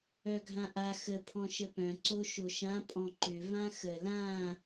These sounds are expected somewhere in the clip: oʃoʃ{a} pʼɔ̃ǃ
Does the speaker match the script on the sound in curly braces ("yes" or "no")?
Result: no